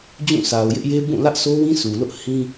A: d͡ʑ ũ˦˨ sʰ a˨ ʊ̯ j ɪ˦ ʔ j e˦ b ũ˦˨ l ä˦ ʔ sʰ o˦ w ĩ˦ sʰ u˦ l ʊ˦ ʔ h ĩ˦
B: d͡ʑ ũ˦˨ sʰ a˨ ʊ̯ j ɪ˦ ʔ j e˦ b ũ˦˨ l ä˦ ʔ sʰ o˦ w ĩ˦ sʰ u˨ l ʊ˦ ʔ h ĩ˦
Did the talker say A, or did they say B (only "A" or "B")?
B